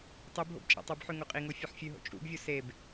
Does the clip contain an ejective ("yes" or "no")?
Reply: yes